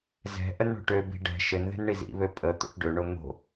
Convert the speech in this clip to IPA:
zɛ̤ ʔənɳo̤ʈøbi̤ ɖɛ̤ ʃɘnðɛ̤n ɳizḭβø pʼə t̪o̰ʈɖøɳo n̪o̤

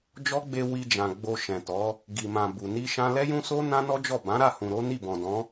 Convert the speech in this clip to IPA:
d͡ʒɔ˦ɡ͡be˧ wi˧d͡ʒã˨ ɡ͡bo˧ʃɛ̃˨tɔ˨˦ | ɡi˨mã˨ bu˨ ni˧ ʃã˧lɛ˦jũ˦so˦ nã˦nɔ˦d͡ʒɔ˦˨ bã˨˦ɾa˦˨hũ˨ ɾo˨˦ni˦˨bɔ̃˨dɔ̃˨˦

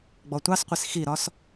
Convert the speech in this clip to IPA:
ɡ͡bɔtʷɑsqʷis xiɾɒs

